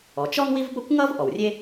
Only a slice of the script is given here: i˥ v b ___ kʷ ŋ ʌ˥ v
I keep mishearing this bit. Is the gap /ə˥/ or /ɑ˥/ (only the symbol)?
ə˥